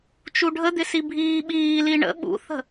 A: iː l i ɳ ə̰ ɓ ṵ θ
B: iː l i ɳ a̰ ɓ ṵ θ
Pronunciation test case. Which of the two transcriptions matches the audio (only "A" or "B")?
A